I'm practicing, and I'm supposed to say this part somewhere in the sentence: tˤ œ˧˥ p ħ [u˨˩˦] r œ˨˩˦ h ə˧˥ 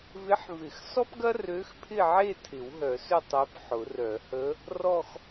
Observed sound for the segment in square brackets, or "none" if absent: ʊ˨˩˦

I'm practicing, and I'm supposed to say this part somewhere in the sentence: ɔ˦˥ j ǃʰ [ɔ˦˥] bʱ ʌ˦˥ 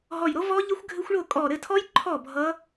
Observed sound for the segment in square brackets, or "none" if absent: ɔ˥˨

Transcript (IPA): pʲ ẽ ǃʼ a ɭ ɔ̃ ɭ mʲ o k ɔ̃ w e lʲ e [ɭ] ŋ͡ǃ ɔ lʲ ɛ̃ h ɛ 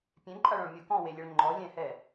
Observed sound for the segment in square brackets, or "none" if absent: ɭ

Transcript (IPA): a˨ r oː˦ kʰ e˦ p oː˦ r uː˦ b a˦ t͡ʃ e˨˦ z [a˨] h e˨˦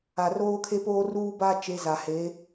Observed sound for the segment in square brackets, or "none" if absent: a˨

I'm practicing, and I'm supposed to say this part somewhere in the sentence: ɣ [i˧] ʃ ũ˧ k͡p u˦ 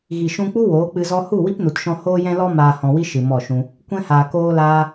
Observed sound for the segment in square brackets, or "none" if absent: i˨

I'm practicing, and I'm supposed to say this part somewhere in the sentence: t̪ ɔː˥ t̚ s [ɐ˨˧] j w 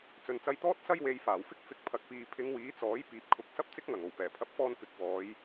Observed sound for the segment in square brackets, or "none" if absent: ɐ˥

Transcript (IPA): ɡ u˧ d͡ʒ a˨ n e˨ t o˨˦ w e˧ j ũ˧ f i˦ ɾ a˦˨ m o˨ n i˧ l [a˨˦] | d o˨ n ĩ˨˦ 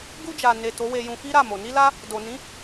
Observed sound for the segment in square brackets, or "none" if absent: a˧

